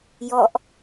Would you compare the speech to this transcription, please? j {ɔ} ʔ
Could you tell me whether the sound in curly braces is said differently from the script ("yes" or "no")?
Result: no